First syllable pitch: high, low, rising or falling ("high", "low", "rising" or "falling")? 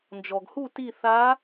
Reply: low